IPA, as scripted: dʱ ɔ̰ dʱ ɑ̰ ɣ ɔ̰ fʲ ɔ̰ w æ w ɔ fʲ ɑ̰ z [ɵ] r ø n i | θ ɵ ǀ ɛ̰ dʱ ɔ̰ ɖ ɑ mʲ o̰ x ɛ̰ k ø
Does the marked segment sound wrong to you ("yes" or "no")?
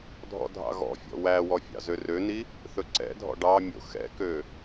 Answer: yes